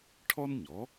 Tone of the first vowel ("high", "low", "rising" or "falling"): high